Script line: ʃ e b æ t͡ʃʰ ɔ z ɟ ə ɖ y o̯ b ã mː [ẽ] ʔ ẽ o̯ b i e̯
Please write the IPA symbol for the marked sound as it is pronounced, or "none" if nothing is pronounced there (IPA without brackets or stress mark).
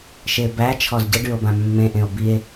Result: ẽ